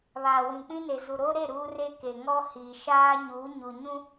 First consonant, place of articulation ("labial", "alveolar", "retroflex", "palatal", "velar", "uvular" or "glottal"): labial